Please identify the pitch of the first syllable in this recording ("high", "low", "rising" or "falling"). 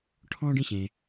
high